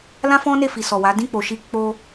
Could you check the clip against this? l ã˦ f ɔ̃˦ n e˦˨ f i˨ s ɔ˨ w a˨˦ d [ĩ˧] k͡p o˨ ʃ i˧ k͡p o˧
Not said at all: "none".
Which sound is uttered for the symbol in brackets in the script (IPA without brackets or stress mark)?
ĩ˦˨